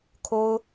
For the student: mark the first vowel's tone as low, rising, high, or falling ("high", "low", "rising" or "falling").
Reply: high